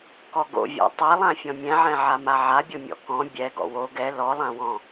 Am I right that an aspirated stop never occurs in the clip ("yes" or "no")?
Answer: yes